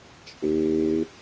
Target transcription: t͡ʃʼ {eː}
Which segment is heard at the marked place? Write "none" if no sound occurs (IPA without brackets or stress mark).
eː